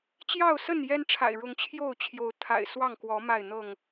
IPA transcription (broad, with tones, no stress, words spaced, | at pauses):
t͡ɕjɑ˥˨ʊ̯sə˥˨n jɛ˦nʈ͡ʂʰa̰˨˩ɪ̯ ɻʊ˨˦ŋt͡ɕʰjo˥˨ʊ̯t͡ɕʰjo˨˦ʊ̯ t̪ʰa̰˨˩ɪ̯ swɑ˥˨ŋkwɔ˨˦ ma˥˨ɪ̯n̪ɤ˥˨ŋ